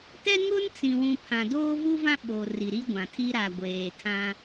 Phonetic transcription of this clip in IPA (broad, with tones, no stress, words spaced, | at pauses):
tɛ˦ŋʊ˦nt͡sĩ˨wũ˨ pʰã˨doː˦vu˦vã˦ ɓo˨ ri˨ɾi˦ɡʷã˨tʰi˦ ɾa˨ɡʷeː˨tʰã˦